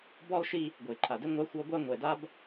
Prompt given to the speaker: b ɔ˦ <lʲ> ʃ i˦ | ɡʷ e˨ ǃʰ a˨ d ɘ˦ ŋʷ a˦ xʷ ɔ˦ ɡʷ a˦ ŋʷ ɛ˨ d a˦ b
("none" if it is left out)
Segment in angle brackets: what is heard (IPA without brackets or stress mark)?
lˠ